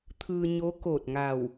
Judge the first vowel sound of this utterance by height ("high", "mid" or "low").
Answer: high